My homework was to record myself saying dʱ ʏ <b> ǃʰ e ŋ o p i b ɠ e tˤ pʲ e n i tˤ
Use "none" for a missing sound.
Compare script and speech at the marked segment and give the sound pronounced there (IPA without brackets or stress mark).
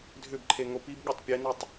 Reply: b